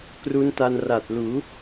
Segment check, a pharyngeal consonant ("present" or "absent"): absent